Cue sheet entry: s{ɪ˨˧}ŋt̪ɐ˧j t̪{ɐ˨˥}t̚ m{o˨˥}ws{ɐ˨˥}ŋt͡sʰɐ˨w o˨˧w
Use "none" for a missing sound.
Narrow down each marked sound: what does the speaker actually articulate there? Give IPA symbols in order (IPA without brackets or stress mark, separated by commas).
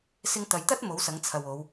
ɪ˥, ɐ˥, o˨˥, ɐ˨˥